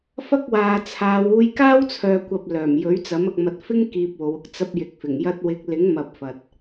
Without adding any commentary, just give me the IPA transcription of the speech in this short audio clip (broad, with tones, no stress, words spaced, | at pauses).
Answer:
fɐ˥k̚waː˨t͡sʰaː˨˧w uː˧j kaː˥wt͡sʰœː˨kʷɐ˨p̚ lœː˨˩mjɵ˨˥ɥt͡sɐ˨˥m ɐ˨k̚mɐ˨t̚fɪ˥ŋ kiː˧p̚wo˨˧wʊ˥k̚ t͡sɐ˥p̚ jɪ˨k̚fɪ˨˩ŋ jɐ˧t̚wɪ˨˥k̚lɪ˨˥ŋmɐ˨p̚ fɐ˨t̚